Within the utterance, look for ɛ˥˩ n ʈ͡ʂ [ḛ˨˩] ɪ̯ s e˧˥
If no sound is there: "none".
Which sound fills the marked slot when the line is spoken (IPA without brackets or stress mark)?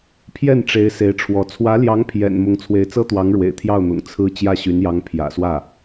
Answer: e˧˥